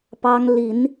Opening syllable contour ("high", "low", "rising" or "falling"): high